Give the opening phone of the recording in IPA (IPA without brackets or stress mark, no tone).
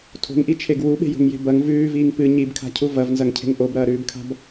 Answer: tʰ